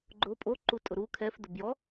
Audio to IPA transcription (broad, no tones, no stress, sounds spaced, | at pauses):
ɡ͡ǃ ʊ pʼ o ǃ u tʼ ʊ ɾ u kʰ ɛ f d ʊ b j ɔ